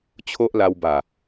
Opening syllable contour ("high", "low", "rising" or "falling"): high